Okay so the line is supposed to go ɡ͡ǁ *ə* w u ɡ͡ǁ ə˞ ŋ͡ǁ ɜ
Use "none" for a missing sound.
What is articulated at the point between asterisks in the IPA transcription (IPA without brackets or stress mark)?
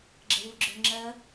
ə